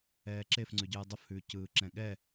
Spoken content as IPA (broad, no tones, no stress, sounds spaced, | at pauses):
ɛː ǁ e f ŋ͡ǀ ʉ ɟ ɯː dˤ ʊ f h ʉː c ɯː ǁ ɛ̃ ɠ ɛ